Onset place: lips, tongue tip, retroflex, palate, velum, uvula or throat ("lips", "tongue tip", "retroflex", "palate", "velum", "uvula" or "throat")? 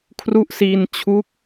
velum